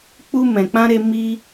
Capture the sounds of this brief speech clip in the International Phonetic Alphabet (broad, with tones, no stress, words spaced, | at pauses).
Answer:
k͡pu˧mɛ̃˨k͡pã˧ɾe˧ mi˦